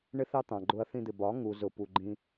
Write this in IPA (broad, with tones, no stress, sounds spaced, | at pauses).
ɳ ɪ˦ θ ɑ˦ t̪ ɑ̃˨ ɡ͡ǃ ʊ˧ ɐ̯ θ ĩ˧ d̪ ɪ˨ b ɒ˨˦ ŋ u˨ z ʊ˨ p u˨ ɡ͡ǃ ĩ˧